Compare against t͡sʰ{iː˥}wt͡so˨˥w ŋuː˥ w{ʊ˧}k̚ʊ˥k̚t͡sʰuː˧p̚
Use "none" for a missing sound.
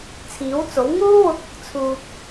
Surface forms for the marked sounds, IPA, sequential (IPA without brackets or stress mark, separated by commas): iː˨˥, ʊ˧